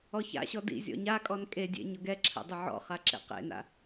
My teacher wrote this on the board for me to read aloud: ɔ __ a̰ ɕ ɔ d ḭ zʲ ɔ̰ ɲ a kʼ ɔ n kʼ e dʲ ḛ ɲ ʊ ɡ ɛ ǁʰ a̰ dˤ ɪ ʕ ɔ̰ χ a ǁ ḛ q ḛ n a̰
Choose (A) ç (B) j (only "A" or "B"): A